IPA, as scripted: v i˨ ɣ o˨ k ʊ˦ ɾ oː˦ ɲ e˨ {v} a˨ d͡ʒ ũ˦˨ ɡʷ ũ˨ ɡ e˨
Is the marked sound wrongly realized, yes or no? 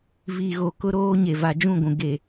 no